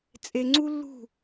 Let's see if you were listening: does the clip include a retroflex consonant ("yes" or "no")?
no